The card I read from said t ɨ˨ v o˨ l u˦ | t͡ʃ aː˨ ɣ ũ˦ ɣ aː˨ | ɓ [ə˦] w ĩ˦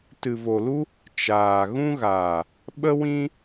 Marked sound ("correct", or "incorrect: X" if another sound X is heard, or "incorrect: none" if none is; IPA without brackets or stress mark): correct